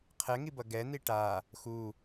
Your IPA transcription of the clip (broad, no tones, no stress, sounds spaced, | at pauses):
qʰ ɛ ŋ i b ʌ ɡ ɛ n̪ i ʈ a | x u